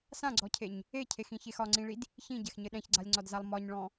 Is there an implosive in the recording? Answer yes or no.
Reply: yes